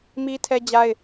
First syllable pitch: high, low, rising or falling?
high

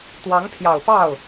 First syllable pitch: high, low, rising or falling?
rising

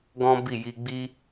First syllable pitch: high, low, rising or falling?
high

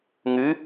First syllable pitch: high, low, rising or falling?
rising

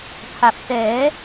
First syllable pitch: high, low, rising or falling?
low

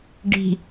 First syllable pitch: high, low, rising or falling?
low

